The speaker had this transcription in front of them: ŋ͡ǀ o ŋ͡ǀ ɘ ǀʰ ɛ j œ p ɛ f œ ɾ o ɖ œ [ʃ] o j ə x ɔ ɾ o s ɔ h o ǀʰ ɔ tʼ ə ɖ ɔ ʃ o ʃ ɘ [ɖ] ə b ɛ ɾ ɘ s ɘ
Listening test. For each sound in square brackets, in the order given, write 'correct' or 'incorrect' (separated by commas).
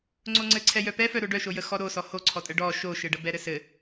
correct, correct